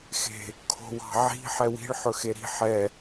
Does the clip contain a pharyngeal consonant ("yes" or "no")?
yes